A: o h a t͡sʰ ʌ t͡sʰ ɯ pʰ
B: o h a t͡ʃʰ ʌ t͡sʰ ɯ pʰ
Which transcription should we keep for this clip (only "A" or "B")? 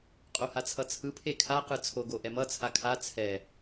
A